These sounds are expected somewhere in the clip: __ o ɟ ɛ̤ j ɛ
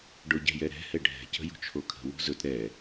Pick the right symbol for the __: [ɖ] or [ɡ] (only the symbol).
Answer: ɖ